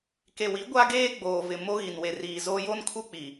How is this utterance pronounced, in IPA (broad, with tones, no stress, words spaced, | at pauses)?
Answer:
ke˨wi˨˦ ɡʷa˦ɡeː˦ ɡ͡boː˨vɪ˨ mo˦ɣi˨nwe˨riː˨ zo˦ jo˦nkʰu˦ k͡pi˨